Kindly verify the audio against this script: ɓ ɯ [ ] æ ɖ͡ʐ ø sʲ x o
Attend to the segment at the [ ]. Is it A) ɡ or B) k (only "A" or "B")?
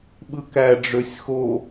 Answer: B